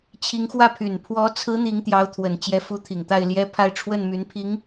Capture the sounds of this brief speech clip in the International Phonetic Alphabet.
t͡ɕʰ i˧˥ ŋ x w ä˥˩ pʰ y˨˩ n pʰ w ɔ˧˥ t͡sʰ ɹ̩˧˥ n̪ i˧˥ ŋ t̪ j ɑ˧˥ ʊ̯ t̪ʰ w ə˨˩ n t͡ɕ j ɛ˧˥ f u˧˥ t̪ʰ i˨˩ ŋ t̪ a˥˩ ɪ̯ l j ɛ˥ pʰ a˥˧ ɪ̯ ʈ͡ʂʰ w ə˥˩ n m y˧˥ n pʰ i˧˥ ŋ

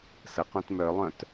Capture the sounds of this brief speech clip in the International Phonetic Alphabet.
s ə q õ t m œ lˠ œ̃ t

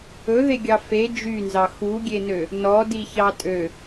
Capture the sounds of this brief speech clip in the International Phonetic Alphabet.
ɵ ð e ɡʲ ɑ f e d͡ʒ y n z ɑ x u ɡʲ e n ø | n ɔ d i ç ɑ tʼ ø

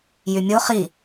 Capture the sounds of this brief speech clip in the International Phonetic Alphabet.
j y mʲ o χ i

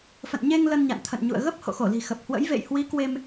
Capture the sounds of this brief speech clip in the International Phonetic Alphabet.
f ə̰˧˨ n ɲ e˧ ŋ l ə˧ n ɲ a̰˧˨ n t̪ʰ ə̰˧˨ n ɲ ṵ˧˨ ə̯ ɣ ə˦˥ p̚ h o̰˧˨ x o˧˩ l i̤˨˩ x ə˨˩ p̚ h w ə̰˧˥ j v ḛ˧˨ j h w i˨˦ k w e˧ m

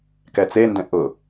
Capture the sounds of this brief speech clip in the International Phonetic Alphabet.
k ɛ t͡s e n d ɛ̃ ʔ ʊ

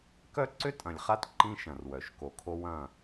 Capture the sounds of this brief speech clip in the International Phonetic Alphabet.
k œ˦ ǀ ʏ˦ tʼ ɐ̃˨ lʲ χ a˦ t ǃ ĩ˦ ʃ ɐ̃˨ r w œ˨ ʃ k o˨ kʰ o˦ w ɐ̃˦˨

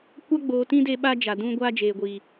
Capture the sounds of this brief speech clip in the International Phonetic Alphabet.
kʷ a˦ ɡ͡b oː˨ t ĩ˦ d e˦ ɓ a˦ d͡ʒ a˨ d ũ˦ ɡʷ aː˦ d͡ʒ eː˨ ɡʷ iː˨

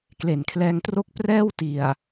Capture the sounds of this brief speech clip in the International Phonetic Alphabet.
k l e˨˩ n kʰ l ɛː˧ ŋ t r o˥˩ k̚ p r ɛː˥˩ w t i˨˩ a̯

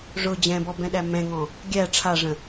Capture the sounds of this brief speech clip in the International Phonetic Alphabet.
ʐ ʊ d͡ʑ ɛ̃ b ɔ b ɛ̃ ɗ æ m ɛ̃ ŋ ɔ̃ | ɡʲ æ ʈ͡ʂʰ a ʐ ə̃

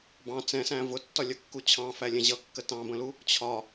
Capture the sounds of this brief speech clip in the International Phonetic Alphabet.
b ɑ̃ t͡s ɛ̃ s æ̃ v ʊ tː ɒ lʲ ʌ kː u t͡ɕʰ ɑ̃ f æ lʲ ɛ̃ ʑ ʌ kː ə t ɑ̃ b ə̃ l u | t͡ɕʰ ɒ

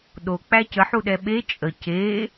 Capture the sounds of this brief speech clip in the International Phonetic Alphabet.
ɗ o k͡p æ c ə ħ u ɗ ɛ ɓ e t͡ʃʼ ə c e

